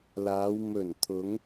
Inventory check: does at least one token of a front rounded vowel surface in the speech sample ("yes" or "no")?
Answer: no